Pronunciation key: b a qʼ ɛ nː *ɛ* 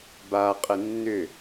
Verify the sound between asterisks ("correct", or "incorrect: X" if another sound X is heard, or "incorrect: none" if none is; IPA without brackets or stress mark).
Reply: incorrect: ʏ